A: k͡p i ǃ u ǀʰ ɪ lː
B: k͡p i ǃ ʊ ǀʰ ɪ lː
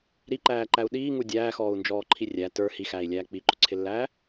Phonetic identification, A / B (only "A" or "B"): B